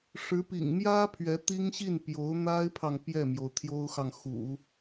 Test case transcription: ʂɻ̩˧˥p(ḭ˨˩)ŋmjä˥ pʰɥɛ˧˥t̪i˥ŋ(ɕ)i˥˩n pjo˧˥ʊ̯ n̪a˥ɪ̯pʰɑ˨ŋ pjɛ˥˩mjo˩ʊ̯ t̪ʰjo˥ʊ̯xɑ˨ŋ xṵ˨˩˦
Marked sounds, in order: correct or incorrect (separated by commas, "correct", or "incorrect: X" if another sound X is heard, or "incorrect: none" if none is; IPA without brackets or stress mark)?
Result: correct, correct